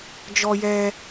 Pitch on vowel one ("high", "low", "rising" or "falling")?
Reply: high